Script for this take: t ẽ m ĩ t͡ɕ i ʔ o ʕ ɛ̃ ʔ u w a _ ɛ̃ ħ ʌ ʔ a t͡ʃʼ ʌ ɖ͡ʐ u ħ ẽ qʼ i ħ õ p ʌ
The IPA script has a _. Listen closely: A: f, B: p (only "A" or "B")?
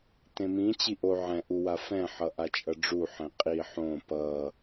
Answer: A